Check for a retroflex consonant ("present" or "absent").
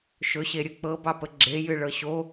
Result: present